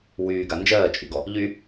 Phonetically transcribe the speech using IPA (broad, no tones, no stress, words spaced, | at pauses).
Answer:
wyːɡa nd͡ʒɜːt͡ʃʼyɡɔ | ʎy